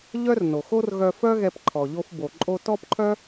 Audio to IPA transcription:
ʎ œ˥ r n o˩ x o˥ r ɣ œ˧ f œ˥ ɣ ɛ˧ p ǃʰ ɔ˩ ʎ o˧ f b o˩ ǃʼ o˧ t ɔ˥ p ǃʰ œ˥

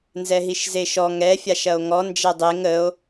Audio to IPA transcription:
n z ɛ ɦ i ʃ z e ʃ ɔ ŋ ɛ fʲ a ʃ ɐ o̯ ŋ ɔ n d͡ʒ ɛ dˤ e ŋ ə o̯

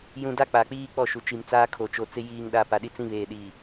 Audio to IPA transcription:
j ũ˦ d a˦ k͡p a˨ k͡p iː˦ k͡p ɔ˦˨ ʃ u˨ t͡ʃ i˨ m t͡s aː˦ kʰ o˨ t͡ʃ o˨ t͡s ɪ˦ j iː˨ ŋ ɗ a˨ p a˨ ɗ i˦ t͡s ĩ˦ β eː˨ ɗ iː˨

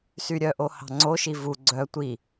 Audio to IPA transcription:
s y ɾʲ œ ʔ o h ɑ̤ ŋ͡ǀ o ʃ i v u ɡ͡ǀ œ tʷ i

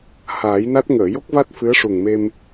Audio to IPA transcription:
h aː˨˩˦ j n a˦˥ t̚ ŋ əː˨˩˨ j o˦˥ k̚ v a˦˥ t̚ f ɨ˧˥ ə̯ ʂ u˨˩ ŋ m e˧ m

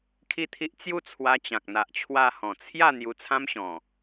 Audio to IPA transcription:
kʰ i˥˧ t̪ʰ i˦ ʔ t͡s j u˥˧ t͡sʰ w a˧ t͡ɕ ã˨ k̚ n̪ a˨ ʔ t͡ɕʰ w a˧ h ɔ̃˨˩ t͡sʰ j a˥˧ n̪ j u˧ t͡sʰ ã˦ m ɕ ɔ̃˨˩

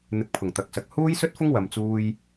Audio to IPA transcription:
n̪ ɪ˧ k̚ pʰ ʊ˨˩ ŋ t̪ ɐ˨˥ k̚ s ɐ˨ k̚ h uː˥ j s ɵ˥ t̚ f ʊ˥ ŋ w ɐ˧ m t͡s uː˥ j

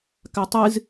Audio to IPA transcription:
k a tˤ ɨ z

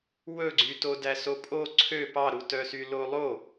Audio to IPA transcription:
w ɵ ɡ͡ǀ y t o d æ s o pʼ o ǀʰ ø p ɑ ɾ u t œ s y l o lˠ o

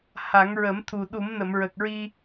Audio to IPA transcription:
h a˨˩˦ ŋ ɹ ə˨˩˦ m t̪ʰ u˨˩ ɗ u˨˩˦ m n ə˨˩˨ m ɹ ə˨˩ k̚ ɹ i˧

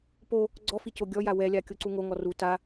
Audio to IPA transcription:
p o | ɡ͡ǀ ɔ f i c o ɡʲ ɔ j a w ɛ lʲ a kʲ o ǀ u ŋ o ŋ ɔ r u t a

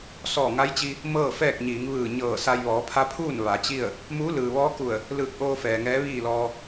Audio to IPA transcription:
s ɔː˧˩ ŋ a˧˥ j t͡ɕ i˧ | m ɤː˥˨ f ɛː˥˨ k̚ ɲ iː˩˧ ŋ ʋ ɯː˧˩ ɲ ɤː˧˩ s a˧ j ʋ ɔː˩˧ pʰ a˧˥ pʰ uː˥˨ n ʋ a˩˧ t͡ɕ i˥˨ ə̯ | m uː˧˥ l ɯː˩ ʋ ɔː˧˥ k u˧˩ ə̯ | l ɯː˧˩ k̚ ʔ oː˧ f ɛː˩ ŋ ɛː˧˥ ʋ iː˥˨ l ɔː˧

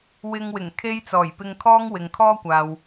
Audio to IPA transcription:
w ɪ˧ ŋ w ɪ˨˩ ŋ kʰ e˥ j t͡s ɔː˨˩ j p ɪ˧ ŋ kʰ ɔː˥ ŋ w ɪ˨ ŋ kʰ ɔː˥ kʷ aː˨ w

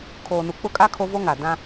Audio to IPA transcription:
kʰ oː˨ n u˨ k͡p ʊ˦ kʼ a˦ kʰ o˦ v o˦ ŋ a˨ d ã˦

